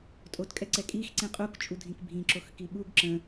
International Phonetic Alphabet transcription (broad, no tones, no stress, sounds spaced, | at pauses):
tʼ o t kʼ ɛ ǀ ɛ kʼ i x ǀ ĩ qʼ u k t͡ʃʼ u dʱ ĩ k bʱ ĩ ǁ o x k i ɓ u ɡ ǁ ə̃